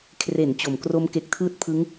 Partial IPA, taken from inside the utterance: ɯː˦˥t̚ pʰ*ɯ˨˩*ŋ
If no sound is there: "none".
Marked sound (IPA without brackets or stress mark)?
ɯ˦˥